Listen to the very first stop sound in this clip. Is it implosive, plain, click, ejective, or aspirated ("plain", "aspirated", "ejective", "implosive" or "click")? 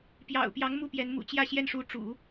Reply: plain